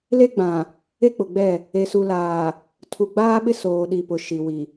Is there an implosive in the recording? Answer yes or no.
yes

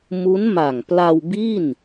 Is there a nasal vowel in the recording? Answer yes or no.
no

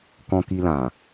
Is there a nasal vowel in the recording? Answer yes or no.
yes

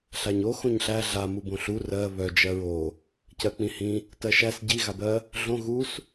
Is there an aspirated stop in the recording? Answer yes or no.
no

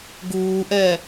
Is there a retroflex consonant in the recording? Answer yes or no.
no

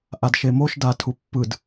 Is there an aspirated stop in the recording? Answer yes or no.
yes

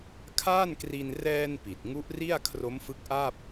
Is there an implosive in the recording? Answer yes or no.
no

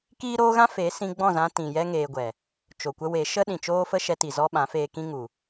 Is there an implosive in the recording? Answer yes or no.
yes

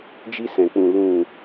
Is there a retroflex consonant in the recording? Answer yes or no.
no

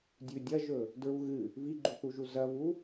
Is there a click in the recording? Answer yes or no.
yes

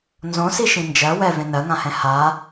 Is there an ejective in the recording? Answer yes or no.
no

